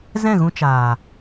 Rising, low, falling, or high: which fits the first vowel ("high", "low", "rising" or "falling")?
falling